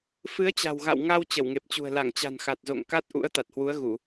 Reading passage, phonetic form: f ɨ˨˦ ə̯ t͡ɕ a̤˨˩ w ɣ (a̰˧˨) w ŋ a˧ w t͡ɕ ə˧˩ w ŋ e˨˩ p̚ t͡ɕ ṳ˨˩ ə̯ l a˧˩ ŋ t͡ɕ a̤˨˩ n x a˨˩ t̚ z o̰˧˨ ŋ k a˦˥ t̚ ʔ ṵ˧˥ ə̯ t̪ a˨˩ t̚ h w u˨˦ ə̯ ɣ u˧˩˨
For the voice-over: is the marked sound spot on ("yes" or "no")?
yes